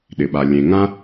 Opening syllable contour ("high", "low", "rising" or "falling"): low